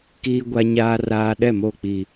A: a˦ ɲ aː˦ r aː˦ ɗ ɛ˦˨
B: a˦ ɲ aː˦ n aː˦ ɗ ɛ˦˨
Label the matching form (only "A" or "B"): A